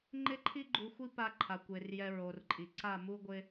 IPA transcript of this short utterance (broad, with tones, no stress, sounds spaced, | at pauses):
ŋ͡ǃ ɪ˦ ǃʰ i˦ ɡ͡ǃ u˧ xʷ i˦ p a˧ ǃʰ a˨ kʷ e˨ r j ɛ˧ ɹ o˨ r ǃʼ i˨ ǀ a˦˨ m u˦ ɡʷ ɪ˧